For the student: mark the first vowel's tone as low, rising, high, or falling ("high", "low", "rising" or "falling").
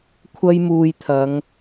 high